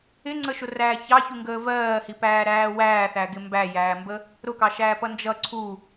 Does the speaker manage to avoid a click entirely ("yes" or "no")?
no